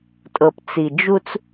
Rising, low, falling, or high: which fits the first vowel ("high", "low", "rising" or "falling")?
low